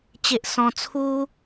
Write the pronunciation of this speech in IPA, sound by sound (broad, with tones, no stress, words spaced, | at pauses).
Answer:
t͡ɕe˦ʔsɔ̃˦ t͡sʰu˦